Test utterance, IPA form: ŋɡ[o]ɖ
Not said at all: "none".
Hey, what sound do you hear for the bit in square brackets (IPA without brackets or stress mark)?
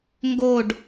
o